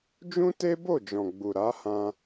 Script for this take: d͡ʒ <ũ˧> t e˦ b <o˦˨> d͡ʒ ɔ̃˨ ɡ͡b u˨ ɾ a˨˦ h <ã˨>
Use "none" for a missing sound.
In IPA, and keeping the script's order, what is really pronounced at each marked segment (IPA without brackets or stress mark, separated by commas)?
ũ˦, o˦˨, ã˧